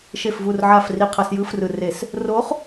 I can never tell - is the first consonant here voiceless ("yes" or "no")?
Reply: yes